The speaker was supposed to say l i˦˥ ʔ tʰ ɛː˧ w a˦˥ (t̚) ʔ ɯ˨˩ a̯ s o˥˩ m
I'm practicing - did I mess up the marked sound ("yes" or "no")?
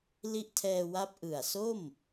yes